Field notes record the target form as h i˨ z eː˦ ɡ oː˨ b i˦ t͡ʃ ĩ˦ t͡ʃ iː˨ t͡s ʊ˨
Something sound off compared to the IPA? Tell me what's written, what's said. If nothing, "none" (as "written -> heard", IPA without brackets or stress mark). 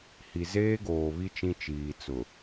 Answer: b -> β